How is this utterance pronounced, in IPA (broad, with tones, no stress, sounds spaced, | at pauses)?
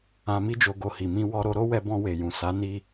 ã˧ m i˦ d͡ʒ o˧ ɡ o˧ h i˨ m ĩ˧ w ɔ˧ ɾ o˧ ɾ o˦ w ɛ˧ b ɔ̃˧ w e˨ j ũ˨ s a˨˦ n i˧